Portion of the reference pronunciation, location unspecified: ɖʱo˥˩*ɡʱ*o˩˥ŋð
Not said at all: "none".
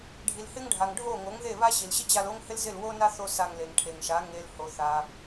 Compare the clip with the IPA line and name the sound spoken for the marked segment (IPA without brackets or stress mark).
ŋ